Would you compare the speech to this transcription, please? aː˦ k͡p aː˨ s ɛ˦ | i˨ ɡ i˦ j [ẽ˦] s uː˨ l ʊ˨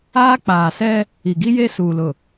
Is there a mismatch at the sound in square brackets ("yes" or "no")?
yes